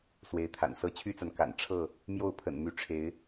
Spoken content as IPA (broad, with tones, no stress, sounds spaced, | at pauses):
s w e˨˦ ɪ̯ t̪ʰ a̰˨˩ n s ɤ˥˨ t͡ɕʰ y˦ t͡s a˨ n k a̰˨˩ n ʈ͡ʂʰ ɤ˥˨ | m j o˥˨ ʊ̯ pʰ ə̰˨˩ n m y˨˦ ʈ͡ʂʰ e˨˦ ɪ̯